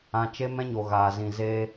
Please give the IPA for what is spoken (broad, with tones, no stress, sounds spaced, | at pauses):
ã˧ t͡ʃ e˦ m ɛ̃˦ ɲ o˨ ɣ aː˨ z ĩ˨ z e˧